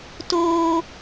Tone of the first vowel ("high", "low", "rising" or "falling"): high